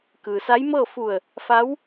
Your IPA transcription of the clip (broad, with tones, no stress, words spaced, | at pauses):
kɯː˩sa˧˥jmɤː˥˨ fu˧˩ə̯ | fa˧˥w